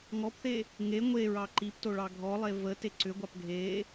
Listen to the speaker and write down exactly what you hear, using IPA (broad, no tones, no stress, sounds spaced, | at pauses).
ŋ ɔ p θ e | ŋ e ŋʷ e ɹ ɑ ǃ i p t o ɭ ɑ ɡʱ ɔ lˠ e v ə t e ǀ ʏ ɡʷ ɑ p ɡʱ e